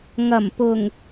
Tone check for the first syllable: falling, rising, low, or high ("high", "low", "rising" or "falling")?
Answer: low